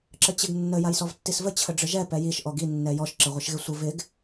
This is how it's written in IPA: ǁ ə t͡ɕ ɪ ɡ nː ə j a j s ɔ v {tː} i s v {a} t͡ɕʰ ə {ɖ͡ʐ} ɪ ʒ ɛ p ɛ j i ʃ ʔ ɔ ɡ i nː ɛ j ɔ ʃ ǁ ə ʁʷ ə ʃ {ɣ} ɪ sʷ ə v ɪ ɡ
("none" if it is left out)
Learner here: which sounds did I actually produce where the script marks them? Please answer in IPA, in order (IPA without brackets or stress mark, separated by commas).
tː, ə, ɖ͡ʐ, ɣ